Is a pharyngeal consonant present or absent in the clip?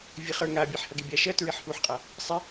present